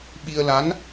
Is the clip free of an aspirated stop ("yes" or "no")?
yes